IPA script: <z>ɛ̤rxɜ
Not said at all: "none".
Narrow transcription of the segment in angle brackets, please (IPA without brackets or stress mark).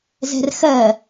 z